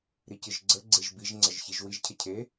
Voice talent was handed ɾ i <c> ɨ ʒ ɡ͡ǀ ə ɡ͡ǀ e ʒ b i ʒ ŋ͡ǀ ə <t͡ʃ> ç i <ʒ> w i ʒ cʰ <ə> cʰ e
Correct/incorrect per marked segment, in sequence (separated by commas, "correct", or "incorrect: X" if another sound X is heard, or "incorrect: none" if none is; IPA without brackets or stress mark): correct, incorrect: ʒ, correct, correct